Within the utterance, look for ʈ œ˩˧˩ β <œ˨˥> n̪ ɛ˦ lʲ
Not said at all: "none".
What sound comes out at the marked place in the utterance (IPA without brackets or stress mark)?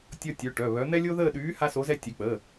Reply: œ˨˥